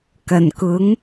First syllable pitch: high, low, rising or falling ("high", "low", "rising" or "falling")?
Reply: low